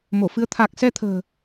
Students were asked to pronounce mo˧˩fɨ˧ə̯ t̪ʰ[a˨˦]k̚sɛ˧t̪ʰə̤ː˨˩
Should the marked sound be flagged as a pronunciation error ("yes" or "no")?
yes